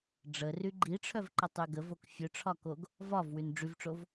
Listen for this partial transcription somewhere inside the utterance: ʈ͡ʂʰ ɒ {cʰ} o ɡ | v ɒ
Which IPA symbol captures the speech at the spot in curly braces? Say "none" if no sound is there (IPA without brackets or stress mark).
k